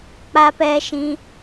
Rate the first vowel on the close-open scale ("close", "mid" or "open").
open